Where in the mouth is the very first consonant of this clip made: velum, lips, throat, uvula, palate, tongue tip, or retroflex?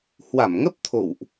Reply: throat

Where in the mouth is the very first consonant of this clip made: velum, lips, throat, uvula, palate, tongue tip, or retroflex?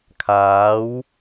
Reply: velum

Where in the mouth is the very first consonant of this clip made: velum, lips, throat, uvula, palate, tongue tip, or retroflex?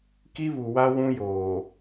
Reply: velum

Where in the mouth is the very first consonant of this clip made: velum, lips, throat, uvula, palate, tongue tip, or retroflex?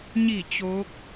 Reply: palate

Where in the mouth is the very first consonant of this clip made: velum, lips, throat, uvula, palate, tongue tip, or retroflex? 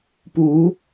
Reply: lips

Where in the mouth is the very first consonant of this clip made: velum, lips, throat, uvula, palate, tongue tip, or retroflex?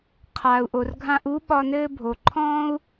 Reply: uvula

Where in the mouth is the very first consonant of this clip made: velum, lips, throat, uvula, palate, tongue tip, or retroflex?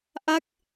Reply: throat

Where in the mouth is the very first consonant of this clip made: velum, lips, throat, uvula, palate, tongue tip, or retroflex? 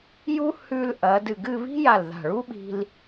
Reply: palate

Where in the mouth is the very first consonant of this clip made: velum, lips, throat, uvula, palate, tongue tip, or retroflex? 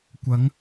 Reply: velum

